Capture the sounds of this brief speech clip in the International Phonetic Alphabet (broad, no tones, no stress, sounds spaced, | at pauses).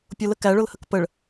pʲ ʊ l ə k æ ɭ ʊ l h ə k p ə ɭ